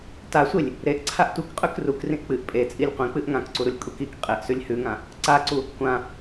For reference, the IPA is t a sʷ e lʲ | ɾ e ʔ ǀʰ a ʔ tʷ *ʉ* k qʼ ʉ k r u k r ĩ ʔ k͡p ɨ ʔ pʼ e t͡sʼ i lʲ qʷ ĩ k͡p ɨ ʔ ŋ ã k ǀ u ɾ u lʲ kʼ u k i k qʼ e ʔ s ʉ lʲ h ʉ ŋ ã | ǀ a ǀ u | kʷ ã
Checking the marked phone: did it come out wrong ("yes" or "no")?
yes